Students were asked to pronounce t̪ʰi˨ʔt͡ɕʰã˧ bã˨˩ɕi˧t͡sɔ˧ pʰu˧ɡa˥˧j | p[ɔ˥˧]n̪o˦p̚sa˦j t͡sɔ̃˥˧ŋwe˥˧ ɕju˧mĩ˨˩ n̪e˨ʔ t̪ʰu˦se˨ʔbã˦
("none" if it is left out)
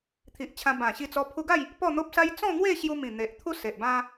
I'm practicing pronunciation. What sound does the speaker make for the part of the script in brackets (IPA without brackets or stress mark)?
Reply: ɔ˥˧